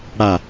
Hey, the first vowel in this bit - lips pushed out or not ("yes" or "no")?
no